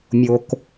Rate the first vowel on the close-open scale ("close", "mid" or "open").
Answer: mid